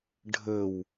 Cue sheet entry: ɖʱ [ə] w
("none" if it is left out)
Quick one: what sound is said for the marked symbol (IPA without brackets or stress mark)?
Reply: ə